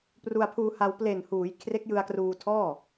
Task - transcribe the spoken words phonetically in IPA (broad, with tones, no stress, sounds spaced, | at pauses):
p r u˧ a̯ pʰ uː˧ h a˧ w p l e˨˩ n h uː˩˦ j kʰ r e˦˥ k̚ j ɯ˧ a̯ k r uː˧ tʰ ɔː˥˩